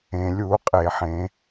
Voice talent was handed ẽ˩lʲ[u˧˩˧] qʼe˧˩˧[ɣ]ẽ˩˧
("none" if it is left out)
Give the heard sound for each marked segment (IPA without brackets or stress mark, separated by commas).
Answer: u˧˩˧, ħ